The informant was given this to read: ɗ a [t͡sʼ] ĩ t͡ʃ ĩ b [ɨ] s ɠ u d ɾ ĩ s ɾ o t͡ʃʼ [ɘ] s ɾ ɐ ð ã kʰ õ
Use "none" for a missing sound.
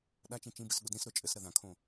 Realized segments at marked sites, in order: t͡ʃ, ɨ, ɘ

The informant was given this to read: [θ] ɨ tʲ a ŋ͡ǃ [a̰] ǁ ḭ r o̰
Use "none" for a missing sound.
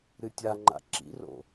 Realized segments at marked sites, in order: ɾ, a̰

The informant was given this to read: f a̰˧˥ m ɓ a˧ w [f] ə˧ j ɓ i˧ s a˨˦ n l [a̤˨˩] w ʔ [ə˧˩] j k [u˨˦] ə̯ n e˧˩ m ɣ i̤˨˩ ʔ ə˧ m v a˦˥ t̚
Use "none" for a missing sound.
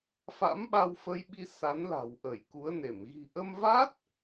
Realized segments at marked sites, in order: f, a̤˨˩, ə˧˩, u˨˦

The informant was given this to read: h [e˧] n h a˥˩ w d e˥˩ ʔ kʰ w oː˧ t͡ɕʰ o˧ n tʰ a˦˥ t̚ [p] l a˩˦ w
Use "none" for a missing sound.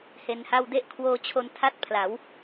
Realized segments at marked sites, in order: e˧, pʰ

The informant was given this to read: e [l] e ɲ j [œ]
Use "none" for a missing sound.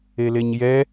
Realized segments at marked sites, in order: l, ɛ

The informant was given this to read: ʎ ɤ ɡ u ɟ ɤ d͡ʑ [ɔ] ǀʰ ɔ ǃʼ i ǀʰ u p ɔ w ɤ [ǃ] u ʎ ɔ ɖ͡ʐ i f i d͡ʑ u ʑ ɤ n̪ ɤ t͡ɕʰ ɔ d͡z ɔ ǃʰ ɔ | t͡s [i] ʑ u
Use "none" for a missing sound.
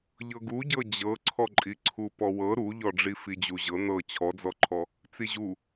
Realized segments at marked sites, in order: ɤ, ɾ, i

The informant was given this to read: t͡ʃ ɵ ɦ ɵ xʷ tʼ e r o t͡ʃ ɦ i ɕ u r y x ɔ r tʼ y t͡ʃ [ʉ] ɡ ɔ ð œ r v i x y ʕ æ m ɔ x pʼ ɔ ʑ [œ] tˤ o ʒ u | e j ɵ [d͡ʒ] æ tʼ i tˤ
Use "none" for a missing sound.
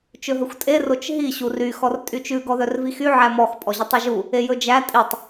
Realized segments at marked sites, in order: ʉ, ɵ, d͡ʒ

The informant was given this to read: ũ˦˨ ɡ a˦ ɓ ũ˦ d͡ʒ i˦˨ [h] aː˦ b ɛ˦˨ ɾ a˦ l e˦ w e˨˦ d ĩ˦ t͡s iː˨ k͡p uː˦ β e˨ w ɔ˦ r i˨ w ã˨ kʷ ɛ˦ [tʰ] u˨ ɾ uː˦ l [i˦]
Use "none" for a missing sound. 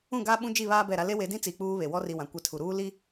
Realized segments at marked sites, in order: β, tʰ, i˦

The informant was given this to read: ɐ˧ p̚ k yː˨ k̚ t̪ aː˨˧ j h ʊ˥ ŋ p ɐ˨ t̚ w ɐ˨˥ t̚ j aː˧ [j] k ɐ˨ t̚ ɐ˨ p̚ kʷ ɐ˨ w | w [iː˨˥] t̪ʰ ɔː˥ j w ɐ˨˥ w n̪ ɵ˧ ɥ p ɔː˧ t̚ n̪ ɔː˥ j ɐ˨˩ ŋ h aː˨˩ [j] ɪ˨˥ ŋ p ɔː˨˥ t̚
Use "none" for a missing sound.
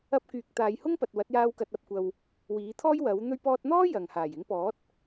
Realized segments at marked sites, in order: w, iː˨˥, j

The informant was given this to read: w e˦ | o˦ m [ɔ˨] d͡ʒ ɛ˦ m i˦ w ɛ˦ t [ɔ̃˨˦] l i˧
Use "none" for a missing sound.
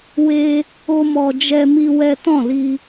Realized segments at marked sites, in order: ɔ˧, ɔ̃˦˨

